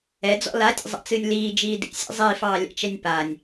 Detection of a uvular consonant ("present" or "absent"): absent